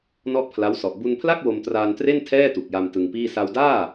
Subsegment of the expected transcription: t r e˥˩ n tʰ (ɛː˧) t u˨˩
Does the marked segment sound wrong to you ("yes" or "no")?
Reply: yes